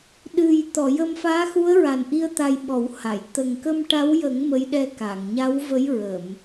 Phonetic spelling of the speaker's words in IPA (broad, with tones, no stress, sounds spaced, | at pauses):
ɗ ɨ˨˩ j t̪ ɔ˨˩˨ j ə˧ m f aː˧˥ x u˧˥ ə̯ ɹ a˨˩ n ʔ i˧ ə̯ t̪ a˧ j ɓ ɔ˨˩˦ w h a˨˩˨ j t̪ ə˨˩ ŋ k ə˧ m ʈ a˧˥ w j ə˨˩˦ ŋ m ə˧˥ j ɗ ɛ˧ k a˨˩˨ ŋ ɲ a˧˥ w v ə˧˥ j ɹ ə˨˩˨ m